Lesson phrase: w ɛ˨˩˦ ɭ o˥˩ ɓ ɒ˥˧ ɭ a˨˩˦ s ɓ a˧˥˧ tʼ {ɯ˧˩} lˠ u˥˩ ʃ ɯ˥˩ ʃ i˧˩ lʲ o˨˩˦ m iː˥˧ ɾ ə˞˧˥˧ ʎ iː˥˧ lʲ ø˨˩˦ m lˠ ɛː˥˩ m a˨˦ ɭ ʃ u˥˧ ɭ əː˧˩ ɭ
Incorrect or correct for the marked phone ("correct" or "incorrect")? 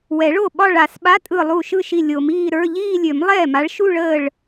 correct